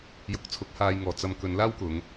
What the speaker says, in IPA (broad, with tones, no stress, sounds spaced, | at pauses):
j ʊ˨˥ k̚ t͡sʰ ʊ˨˥ k̚ h aː˧ j ŋ ɔː˨˧ t͡s ɐ˨ m k ɵ˨˧ n l aː˥ w k ʊ˨˧ ŋ